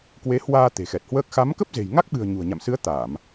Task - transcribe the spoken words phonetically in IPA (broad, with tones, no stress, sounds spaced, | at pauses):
k w e˨˦ h w aː˧ t̪ e̤˨˩ x ɛ˨˩ t̚ h w əː˦˥ k̚ x a˨˦ m k ə˦˥ p̚ z e̤˨˩ j ŋ a˦˥ k̚ ɓ ɨ̤˨˩ ə̯ ɲ ṳ˨˩ ə̯ ɲ a̰˧˨ m s ɨ˨˦ ə̯ t̪ a˧˩˨ m